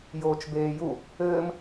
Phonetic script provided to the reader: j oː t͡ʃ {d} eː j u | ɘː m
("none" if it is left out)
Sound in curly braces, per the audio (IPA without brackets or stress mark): b